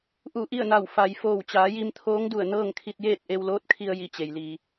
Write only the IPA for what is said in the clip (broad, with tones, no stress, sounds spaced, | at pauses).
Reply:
ʔ u˧˩ ʔ i˥˨ ə̯ n a˧˩ w f a˩ j f oː˧˩ w t͡ɕ aː˩˧ j i˧ m t̪ʰ oː˧˥ ŋ d u˧˩ ə̯ n ɤː˥˨ ŋ kʰ i˧ t̚ j eː˥˨ t̚ ʔ e˧ w l oː˧˥ t̚ kʰ i˧ ə̯ j i˥˨ t͡ɕ e˩ j l iː˩